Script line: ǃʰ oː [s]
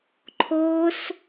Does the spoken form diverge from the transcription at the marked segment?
no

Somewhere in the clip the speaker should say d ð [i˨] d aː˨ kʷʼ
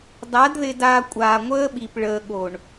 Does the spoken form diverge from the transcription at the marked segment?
yes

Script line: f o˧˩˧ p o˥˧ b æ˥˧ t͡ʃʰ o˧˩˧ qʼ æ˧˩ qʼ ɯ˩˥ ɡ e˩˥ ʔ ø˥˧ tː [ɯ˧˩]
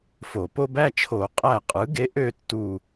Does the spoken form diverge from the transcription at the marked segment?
yes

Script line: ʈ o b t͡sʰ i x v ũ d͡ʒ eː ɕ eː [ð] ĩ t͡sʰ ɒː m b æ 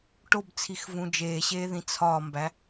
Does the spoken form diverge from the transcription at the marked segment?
no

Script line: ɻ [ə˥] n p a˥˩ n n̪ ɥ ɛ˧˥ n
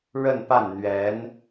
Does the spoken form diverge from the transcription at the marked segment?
yes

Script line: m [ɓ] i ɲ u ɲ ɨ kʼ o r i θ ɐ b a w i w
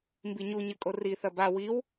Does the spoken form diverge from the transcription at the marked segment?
yes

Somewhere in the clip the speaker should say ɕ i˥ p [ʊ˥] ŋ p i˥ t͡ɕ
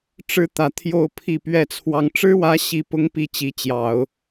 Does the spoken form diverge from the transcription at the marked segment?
no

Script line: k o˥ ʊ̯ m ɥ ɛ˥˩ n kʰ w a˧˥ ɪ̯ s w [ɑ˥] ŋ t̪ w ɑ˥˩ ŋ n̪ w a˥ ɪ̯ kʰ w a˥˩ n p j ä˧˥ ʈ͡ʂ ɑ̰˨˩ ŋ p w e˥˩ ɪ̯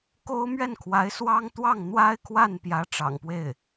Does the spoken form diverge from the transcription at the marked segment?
no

